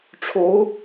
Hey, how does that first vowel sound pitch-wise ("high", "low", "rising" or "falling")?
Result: rising